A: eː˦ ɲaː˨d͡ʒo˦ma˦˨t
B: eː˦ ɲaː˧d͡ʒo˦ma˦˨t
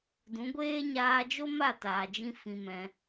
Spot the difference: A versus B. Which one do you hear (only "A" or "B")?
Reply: B